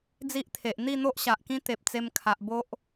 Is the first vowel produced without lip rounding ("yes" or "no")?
yes